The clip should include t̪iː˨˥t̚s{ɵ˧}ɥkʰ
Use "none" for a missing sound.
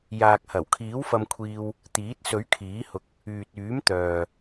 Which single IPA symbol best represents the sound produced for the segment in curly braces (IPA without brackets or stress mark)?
ɵ˨˥